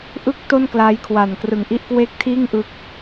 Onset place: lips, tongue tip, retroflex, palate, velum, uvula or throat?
throat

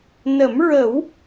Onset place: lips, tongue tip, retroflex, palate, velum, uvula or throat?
tongue tip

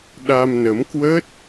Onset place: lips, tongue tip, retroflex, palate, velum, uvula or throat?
tongue tip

